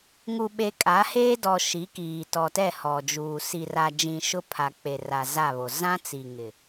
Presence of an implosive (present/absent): present